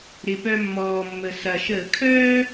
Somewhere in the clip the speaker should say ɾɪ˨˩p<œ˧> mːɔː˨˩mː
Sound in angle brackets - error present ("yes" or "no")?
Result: no